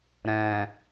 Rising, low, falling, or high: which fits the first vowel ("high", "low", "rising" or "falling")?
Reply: low